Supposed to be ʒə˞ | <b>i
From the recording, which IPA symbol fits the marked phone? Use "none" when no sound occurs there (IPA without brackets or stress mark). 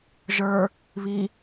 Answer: β